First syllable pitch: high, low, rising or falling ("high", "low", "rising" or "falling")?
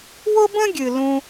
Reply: high